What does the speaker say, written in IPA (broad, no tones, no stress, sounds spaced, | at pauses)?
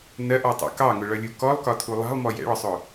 n ɜ ʔ ɔ tˤ ṵ k ɑ ŋ ʊ ɭ ʌ lʲ u k ɔ lˠ k ɒ tʰ u lˠ ɑ̤ lˠ m ɔ j ɛ̰ ɭ ɒ sˤ ʊ